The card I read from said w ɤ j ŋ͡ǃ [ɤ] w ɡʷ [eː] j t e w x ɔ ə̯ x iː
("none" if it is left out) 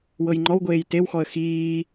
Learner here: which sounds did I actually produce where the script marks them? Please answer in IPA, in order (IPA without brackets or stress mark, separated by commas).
ɔ, eː